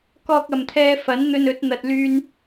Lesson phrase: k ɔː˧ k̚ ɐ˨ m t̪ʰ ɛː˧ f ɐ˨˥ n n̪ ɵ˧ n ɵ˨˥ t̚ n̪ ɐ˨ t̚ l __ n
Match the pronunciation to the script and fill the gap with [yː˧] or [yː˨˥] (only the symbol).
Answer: yː˧